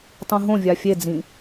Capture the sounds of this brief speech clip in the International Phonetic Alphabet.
tˤ ũ ɦ õ vʲ a fʲ e d͡z ĩ

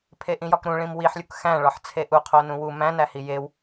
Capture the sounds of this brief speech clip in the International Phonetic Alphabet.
pʰ e ʔ ĩ j ɒ k ɾ ũ ɭ ĩ m w i ħ lʲ u k x æ̃ ɭ ɒ ħ t͡sʰ e ʔ u qʰ o n ũ w u m æ̃ n æ h i j e w

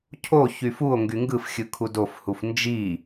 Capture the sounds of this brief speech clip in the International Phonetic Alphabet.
cʰ o ç y f u o̯ ŋ ɡ y ŋ ɡ ɯ f xʲ ɯ kʰ u d o f h u f n d͡ʒ i

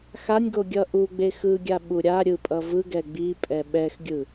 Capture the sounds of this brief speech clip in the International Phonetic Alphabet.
x a nʲ ɡ o ɡʲ ʌ ʔ u ɡ͡b e x ɯ ɡʲ a ɓ u ɾʲ a ɾʲ ɯ pʼ ʌ v ɯ ɡ ɛ ɡ͡b i pʼ ɛ ɓ ɛ x ɡʲ ɯ

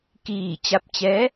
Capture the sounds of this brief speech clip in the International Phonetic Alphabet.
k iː˧˩ t͡ɕ a˧˥ p̚ t͡ɕ ɛː˧˥

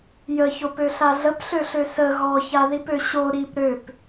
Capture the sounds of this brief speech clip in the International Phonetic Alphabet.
j ə ç o p ø ɬ a ɮ ə p ɬ ø ɬ ø s ə ɣ ɔ ç a ð i p ø ɕ o ɾ i p ɾ ø p

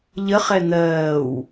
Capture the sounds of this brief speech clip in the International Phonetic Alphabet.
ʎ ə χ ɛ n̪ ɜː w

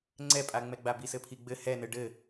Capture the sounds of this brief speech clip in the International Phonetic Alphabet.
ŋ͡ǀ ɛ pʼ a ŋ͡m ɛ ɡ͡b a b i s ɘ pʰ i ɡ͡b ɘ h ɛ n ɘ ɖ ɘ

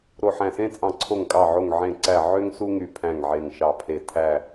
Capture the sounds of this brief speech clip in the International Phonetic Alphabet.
ɾ o˧˩ ħ æ̃˧˩ s ẽ˥ t͡sʼ ɑ̃˧˩ ǀʰ o˧˩ ŋ kʼ ɑ˧˩ ʕ o˧˩ ŋ ʕ ẽ˧˩ ǀ æ˧˩ ʕ ø˥ ŋ s u˥ ŋ y˧˩ pʰ æ̃˧˩ ŋ ʕ e˧˩ ŋ ʃ ɑ˧˩ pʰ e˧˩ tʰ æ˧˩

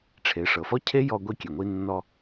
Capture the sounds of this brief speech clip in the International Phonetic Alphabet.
ʈ͡ʂʰ e˩˧ ʂ ɤ˩ f ɔ˥ cʰ e˥ j ɔ˧ ɡʷ i˧ kʲ e˩ ŋʷ i˧ nː ɔ˧

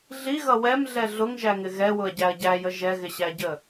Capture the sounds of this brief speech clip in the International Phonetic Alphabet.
ɮ i ɣ ʌ w ɛ m ɮ ɛ ɮ ʊ ŋ ʒ æ ŋ ɪ ɣ ɛ w ʊ ɐ̯ ɟ æ ɐ̯ ɟ æ j ə ʒ ɛ ɣ ɪ ɕ æ ɟ ə

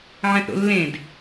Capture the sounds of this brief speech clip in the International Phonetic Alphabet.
ʕ ɛ̃ θ ɾ o̰ lː ẽ d

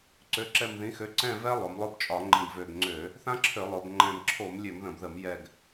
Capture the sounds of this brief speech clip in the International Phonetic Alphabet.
ǀ ø˨˥ ǁ ɛ˦˨ m ð ĩ˨˥ x ø˨˥ ǀ ɛ̃˦˨ v ɛ˦˥ lˠ o˩˧ m lˠ ʊ˦˨ b t͡ʃʼ ɒ˧˩˧ ŋ͡ǃ ĩ˨˩ ɡ v ø˨˩ ɡ ŋ͡ǀ ø˧˩˧ | θ ã˦˥ ǁʰ ø˧˩˧ lˠ ʊ˩˧ b ŋ͡ǃ ɛ̃˨˩ m ǁʰ o˧˩˧ m lʲ ø˧˩˧ m ð ə̃˨˩ b ð ə˧˩˧ m j ɛ˨˩ ɡ

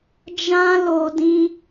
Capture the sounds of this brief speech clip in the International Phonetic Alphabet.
d͡ʒ ã˦ l o˧ d ĩ˦

